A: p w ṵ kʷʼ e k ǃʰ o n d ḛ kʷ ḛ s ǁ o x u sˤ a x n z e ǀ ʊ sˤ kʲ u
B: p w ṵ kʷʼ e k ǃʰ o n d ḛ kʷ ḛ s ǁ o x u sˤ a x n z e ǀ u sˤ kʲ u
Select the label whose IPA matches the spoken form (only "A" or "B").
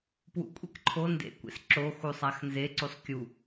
B